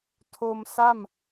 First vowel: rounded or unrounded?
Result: rounded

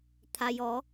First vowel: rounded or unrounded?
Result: unrounded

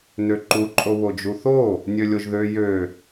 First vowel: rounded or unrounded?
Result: rounded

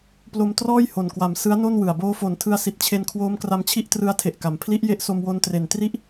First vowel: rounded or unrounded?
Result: rounded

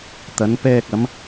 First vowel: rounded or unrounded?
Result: unrounded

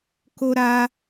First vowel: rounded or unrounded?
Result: rounded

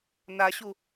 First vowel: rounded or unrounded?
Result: unrounded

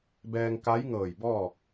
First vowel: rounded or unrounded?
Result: unrounded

